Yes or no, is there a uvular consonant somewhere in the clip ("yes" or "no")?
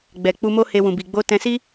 no